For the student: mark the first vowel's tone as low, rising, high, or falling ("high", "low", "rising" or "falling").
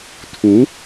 rising